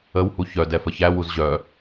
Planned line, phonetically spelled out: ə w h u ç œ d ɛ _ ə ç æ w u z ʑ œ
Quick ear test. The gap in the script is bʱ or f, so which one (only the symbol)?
f